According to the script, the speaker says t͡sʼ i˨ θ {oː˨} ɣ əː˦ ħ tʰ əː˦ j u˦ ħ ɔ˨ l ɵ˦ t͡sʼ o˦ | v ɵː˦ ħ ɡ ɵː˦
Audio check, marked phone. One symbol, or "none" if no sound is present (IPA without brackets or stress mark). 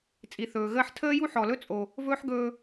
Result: ɵː˨